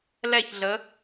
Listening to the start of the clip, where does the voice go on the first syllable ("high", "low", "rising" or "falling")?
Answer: falling